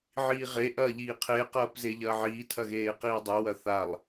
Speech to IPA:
ʕ iː ʁ e ʔ ɐː ʎ iː qʰ e q ɐː p z e ʎ ɐː ʕ iː tʰ ɐ ɣ eː q iː dˤ e w ɐ θ a lˠ

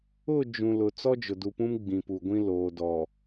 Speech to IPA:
ʊ˦˨ d͡ʒ ũ˨ l ʊ˨ t͡s ɔ˦ d͡ʒ ʊ˨ d u˨ p ũ˦ m ɡ͡b ĩ˨ p u˨ ɡʷ ĩ˦ l oː˨ d ɔ˨

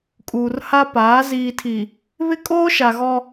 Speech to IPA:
kʼ uː˨ r h a˦ p aː˨˦ z iː˨ tʰ i˨ | β ɪ˦ kʼ oː˦ ʃ a˨ ɣ ɔ˦

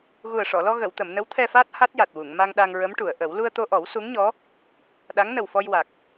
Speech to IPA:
ɣ u˨˩ ə̯ ʂ ɔ˨˩˨ l ɔ˧ ɣ ə˨˩˨ w t̪ ə˨˩˨ m n ə˧˥ w t̪ʰ ɛ˧ f aː˦˥ t̚ h a˦˥ t̚ j a˨˩ t̚ w u˨˩˨ ŋ m a˧ ŋ ɗ a˧ ŋ ɹ ə˧˥ m ʈ u˨˩˨ ə̯ ʔ ə˨˩˦ w l u˧ ə̯ t̪ o˧ ʔ ɔ˨˩˦ w s u˧˥ ŋ ɲ ɔ˧˥ | ɗ a˧˥ ŋ n ə˨˩ w f ɔ˧ j w a˨˩ k̚

